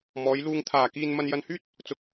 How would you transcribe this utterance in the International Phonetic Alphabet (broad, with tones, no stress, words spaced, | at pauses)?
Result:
mɔː˨˧jluː˧ŋ t̪ʰaː˨kiː˧n mɐ˧njɐ˧nhyː˥t̚ | t͡sʊ˨k̚